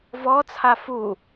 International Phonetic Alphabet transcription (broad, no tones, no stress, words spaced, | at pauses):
vɔt͡sʰa fu